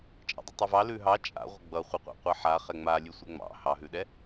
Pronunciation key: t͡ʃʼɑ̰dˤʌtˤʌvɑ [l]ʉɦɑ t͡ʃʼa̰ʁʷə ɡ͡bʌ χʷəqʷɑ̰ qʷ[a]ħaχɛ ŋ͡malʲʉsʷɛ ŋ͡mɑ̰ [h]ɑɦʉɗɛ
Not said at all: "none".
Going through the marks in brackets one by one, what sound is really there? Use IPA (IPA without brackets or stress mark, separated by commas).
l, ɑ, h